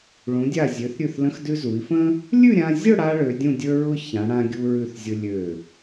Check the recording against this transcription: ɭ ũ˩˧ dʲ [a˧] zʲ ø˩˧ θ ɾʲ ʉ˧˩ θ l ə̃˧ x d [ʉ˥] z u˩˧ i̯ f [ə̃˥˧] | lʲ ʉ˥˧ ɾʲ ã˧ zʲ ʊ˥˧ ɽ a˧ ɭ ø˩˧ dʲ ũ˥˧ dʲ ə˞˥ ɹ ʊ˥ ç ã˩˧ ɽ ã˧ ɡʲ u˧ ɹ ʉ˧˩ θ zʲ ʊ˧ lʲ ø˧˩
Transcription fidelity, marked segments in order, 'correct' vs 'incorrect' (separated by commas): incorrect, incorrect, incorrect